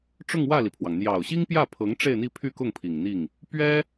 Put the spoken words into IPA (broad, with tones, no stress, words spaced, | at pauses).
ʈ͡ʂʊ˥˧ŋwä˥˩li˩pʰwɑ˩ŋ n̪jɑ˨˩ʊ̯ ɕi˥ŋpjä˥˩pʰɤ˧˥ŋ ʈ͡ʂe˥˧ɪ̯n̪i˥˧pʰy˥˧kʊ˥˩ŋ pʰi˨˩ŋn̪i˥˩ŋ | pɥɛ˥